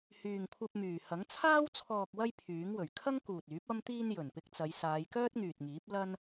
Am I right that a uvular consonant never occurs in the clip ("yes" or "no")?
yes